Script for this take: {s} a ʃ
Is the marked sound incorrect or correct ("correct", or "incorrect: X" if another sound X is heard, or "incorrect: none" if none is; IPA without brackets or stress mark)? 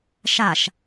incorrect: ʃ